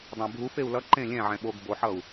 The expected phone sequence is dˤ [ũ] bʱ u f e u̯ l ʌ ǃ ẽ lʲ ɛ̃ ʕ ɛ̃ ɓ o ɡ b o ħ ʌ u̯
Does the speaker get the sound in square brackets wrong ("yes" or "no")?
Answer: yes